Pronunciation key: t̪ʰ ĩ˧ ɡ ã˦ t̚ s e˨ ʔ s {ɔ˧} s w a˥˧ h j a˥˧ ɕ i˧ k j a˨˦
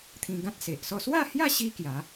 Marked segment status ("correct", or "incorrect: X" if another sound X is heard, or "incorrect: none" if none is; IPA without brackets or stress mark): incorrect: ɔ˥˧